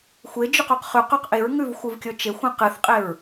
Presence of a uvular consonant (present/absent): present